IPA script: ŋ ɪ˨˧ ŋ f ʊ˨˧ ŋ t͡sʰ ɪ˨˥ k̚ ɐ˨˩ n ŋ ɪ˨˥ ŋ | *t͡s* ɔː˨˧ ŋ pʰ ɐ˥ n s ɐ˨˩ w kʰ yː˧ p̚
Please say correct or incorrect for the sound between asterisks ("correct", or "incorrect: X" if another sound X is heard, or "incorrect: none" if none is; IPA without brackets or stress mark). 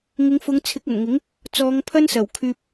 correct